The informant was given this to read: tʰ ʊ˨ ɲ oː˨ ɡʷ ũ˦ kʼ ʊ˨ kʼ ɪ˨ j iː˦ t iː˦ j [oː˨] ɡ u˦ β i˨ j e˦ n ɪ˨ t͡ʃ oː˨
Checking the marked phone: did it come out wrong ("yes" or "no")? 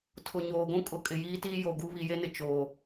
yes